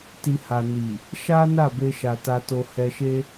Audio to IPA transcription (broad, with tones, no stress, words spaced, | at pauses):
ti˨ha˨ ni˨ | ʃa˦na˦˨ be˧ʃa˨ ta˧to˧ hɛ˧ʃe˦